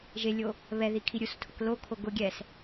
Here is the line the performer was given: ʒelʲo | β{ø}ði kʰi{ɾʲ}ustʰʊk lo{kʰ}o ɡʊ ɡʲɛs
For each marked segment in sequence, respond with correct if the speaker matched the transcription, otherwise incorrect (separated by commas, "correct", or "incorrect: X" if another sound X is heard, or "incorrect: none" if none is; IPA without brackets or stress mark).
incorrect: ɛ, correct, correct